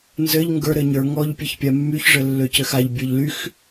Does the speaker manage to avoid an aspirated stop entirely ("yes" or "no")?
yes